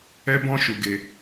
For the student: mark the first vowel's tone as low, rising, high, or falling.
high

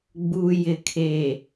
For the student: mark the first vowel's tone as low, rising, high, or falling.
low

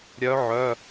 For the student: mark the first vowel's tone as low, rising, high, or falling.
rising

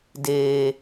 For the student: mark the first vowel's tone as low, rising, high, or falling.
low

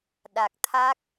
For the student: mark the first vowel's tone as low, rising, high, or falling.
low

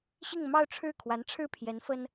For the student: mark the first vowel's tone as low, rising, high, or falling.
falling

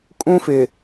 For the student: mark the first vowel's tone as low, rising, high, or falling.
high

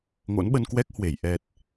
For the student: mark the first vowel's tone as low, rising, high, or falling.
rising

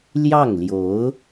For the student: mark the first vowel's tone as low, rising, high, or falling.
falling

